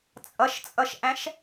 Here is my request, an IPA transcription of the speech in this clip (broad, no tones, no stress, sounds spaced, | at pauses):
t͡sʼ ʌ ʃ t͡sʼ ʌ ʃ ʔ æ̃ ʃ